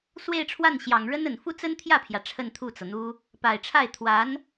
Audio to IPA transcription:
s w e˥˧ ɪ̯ ʈ͡ʂʰ w a˥˩ n ɕ j ɑ˨˩ ŋ ɻ ə˥ n ə˨˩ n f u˥ t͡s ə˥ n t̪ʰ j ä˥˩ pʰ j ä˩ ʈ͡ʂʰ ə˥˧ n t̪ʰ u˥˩ t͡s ɤ˩ n̪ u˥ | p a˨˩ ɪ̯ ʈ͡ʂʰ a˥˩ ɪ̯ t̪ʰ w a˧˥ n

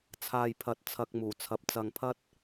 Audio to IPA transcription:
t͡sʰ aː˨ j pʰ ɐ˨ t̚ t͡sʰ ɐ˧ k̚ m uː˨˩ t͡sʰ ɐ˨˥ p̚ t͡s ɐ˨ ŋ pʰ ɐ˥ t̚

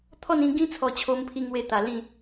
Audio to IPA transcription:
t̪ʰ ɔ˥˧ n ĩ˧ ɡ ĩ˦ t͡sʰ ɔ˧ t͡ɕʰ o˧ m pʰ i˧ ŋ w e˧ t̪ a˨˩ l ĩ˥˧

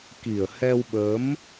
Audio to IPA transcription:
k i˨˩ ə̯ h ɛ˧ w ɓ ə˨˦ m

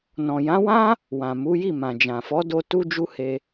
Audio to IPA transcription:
n ɔ̃˨ j ã˨˦ w ã˦ | w ã˨ m u˨˦ j i˦˨ m ã˨ d͡ʒ ã˨ f ɔ˨˦ d o˧ t u˦ d͡ʒ u˦ h e˧

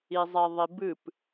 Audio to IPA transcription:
i zˤ ɛ ðˤ i b ɨ p

